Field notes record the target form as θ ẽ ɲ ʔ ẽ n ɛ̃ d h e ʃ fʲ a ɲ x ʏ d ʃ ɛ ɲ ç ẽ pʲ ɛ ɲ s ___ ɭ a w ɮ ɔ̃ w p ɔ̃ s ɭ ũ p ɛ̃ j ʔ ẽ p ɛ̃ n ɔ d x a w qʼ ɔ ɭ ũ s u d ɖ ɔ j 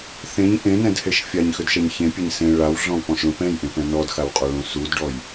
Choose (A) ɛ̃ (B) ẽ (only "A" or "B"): B